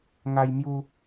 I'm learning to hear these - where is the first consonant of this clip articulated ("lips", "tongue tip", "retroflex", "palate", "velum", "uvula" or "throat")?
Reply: velum